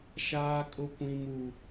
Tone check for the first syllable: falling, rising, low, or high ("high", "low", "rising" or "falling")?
high